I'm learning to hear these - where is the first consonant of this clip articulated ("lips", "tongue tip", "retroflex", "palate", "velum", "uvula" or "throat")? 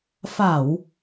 lips